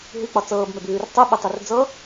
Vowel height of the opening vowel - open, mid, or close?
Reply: close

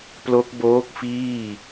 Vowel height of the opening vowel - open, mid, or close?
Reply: mid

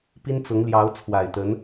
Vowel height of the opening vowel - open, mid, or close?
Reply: close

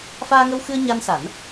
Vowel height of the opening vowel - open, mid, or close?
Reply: open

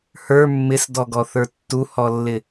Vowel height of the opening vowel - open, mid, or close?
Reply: mid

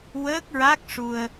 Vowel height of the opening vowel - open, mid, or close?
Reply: mid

